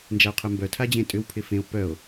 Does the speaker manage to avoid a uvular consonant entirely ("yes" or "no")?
no